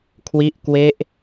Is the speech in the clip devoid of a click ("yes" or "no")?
yes